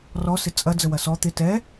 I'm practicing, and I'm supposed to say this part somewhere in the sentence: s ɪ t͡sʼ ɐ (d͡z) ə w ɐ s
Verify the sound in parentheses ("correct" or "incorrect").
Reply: correct